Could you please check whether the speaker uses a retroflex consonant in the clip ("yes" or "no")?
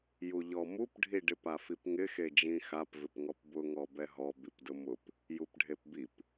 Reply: yes